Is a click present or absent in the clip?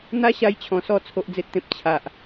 absent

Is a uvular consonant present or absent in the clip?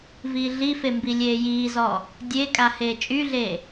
absent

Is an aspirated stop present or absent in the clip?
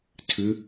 present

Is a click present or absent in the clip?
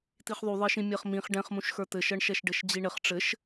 absent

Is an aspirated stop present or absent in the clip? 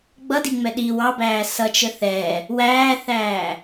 absent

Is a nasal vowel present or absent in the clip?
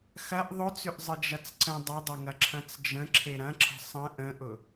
present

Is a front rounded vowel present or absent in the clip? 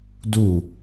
absent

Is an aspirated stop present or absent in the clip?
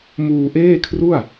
present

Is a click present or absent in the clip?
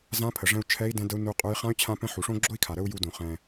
present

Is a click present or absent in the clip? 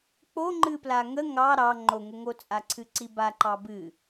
present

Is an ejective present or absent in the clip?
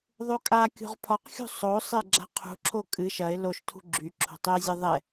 present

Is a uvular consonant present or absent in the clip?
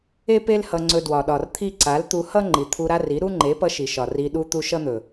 absent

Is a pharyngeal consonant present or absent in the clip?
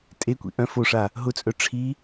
absent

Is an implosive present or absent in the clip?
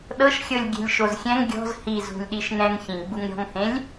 present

